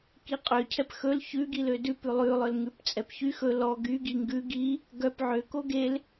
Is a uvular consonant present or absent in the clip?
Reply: present